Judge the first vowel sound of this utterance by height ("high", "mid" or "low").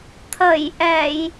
mid